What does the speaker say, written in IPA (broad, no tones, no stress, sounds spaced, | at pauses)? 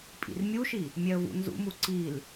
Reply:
pʼ ḭ r mʲ u ʃ i | mʲ ɛ ə̯ v ṵ n z ṵ m u ǀ i l